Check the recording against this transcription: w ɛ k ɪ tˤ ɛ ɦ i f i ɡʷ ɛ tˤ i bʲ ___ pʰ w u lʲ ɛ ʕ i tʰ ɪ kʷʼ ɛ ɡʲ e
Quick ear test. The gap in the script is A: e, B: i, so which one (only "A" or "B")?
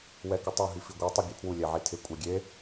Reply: A